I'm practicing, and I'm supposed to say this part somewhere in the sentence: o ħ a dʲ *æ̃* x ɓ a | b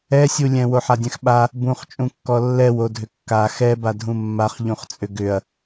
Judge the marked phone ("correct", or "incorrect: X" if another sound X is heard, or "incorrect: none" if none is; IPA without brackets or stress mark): incorrect: ɛ̃